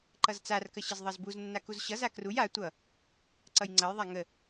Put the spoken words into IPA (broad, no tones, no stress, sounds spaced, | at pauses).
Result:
ǃ ʌ z t͡s a r k ə ɕ ə z ðˤ ʌ z b u z nː a k u z ɕ ʌ z a k r u j a tʷ ʌ | ǀ ʌ j ŋ͡ǀ ʌ j ðˤ a ŋ ə